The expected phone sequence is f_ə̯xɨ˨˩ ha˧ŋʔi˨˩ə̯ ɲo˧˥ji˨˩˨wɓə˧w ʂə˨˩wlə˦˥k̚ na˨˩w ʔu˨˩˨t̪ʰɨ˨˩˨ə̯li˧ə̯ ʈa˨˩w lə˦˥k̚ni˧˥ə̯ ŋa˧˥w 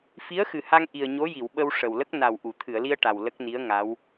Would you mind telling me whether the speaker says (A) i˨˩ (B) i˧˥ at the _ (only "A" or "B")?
B